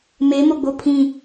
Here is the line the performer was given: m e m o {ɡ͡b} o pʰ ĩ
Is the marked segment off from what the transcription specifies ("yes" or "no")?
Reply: no